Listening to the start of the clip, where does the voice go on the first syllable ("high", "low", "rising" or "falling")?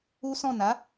high